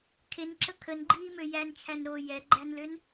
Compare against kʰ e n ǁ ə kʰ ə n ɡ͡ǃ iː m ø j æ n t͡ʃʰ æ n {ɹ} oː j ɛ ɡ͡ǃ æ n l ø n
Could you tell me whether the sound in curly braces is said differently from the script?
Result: yes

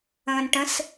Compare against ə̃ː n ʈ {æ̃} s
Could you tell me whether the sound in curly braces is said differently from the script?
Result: yes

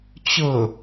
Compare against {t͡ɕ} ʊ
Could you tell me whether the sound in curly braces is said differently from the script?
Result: no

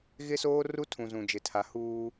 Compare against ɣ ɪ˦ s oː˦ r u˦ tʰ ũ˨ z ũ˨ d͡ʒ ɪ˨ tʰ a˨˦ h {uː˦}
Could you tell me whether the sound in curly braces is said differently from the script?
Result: no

